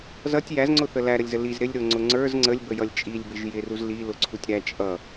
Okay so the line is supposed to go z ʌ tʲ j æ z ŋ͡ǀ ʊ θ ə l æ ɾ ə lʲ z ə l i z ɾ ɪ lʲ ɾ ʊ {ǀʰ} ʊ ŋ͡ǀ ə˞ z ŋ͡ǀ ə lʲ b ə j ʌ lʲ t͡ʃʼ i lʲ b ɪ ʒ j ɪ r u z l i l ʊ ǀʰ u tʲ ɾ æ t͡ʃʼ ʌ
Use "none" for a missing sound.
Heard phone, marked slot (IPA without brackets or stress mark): ŋ͡ǀ